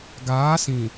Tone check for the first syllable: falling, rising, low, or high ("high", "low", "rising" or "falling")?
rising